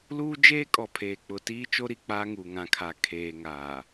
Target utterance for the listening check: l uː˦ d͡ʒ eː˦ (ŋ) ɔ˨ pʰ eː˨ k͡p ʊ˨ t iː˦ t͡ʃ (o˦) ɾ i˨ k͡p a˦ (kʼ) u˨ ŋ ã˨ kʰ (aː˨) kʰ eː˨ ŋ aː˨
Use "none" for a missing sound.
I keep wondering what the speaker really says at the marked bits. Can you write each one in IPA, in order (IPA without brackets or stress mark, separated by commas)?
kʼ, o˦, ŋ, a˨